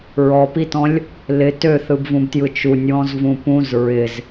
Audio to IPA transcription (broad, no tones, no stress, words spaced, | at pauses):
ɹɔpitɔ̃lʲ | lɪ tøθɯbvũbtjɯ t͡ʃunʲwɔ̃zvũ pũz ɹɪz